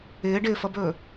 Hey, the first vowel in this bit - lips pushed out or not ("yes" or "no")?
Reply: no